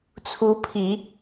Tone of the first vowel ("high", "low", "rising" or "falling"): rising